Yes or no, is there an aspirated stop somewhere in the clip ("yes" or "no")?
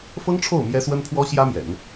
yes